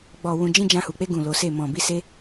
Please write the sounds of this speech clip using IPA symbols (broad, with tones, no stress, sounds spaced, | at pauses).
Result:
ɡ͡b ɔ˨ w ũ˨ d͡ʒ ĩ˧ d͡ʒ ã˧ h u˨ k͡p e˧ ɡ ũ˨ l o˨˦ s e˦˨ m ɔ̃˨ b i˧ s e˦